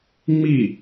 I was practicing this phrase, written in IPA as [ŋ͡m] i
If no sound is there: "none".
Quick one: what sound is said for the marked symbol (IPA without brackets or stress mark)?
ŋ͡m